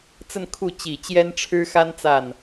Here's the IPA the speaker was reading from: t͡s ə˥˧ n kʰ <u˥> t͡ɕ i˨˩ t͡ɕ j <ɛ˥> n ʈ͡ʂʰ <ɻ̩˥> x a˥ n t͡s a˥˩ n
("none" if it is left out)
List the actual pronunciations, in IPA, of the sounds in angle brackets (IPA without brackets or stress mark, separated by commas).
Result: u˥˩, ɛ˥, ɻ̩˥